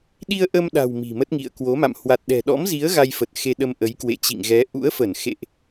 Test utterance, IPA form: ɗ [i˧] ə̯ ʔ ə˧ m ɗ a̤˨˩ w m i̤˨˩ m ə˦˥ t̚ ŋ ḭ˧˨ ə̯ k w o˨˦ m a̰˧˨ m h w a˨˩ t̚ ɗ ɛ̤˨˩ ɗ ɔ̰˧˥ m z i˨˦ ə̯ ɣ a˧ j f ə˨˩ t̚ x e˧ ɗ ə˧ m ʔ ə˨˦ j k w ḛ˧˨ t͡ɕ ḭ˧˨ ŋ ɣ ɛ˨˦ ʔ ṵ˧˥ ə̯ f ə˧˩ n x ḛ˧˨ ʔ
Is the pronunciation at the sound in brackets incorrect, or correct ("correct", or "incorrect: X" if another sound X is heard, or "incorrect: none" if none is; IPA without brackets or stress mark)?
correct